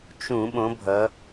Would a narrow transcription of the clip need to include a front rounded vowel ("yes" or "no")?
no